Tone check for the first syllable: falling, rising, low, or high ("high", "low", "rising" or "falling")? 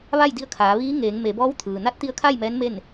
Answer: falling